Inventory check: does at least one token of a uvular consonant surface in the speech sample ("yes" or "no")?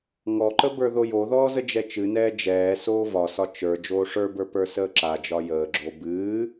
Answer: no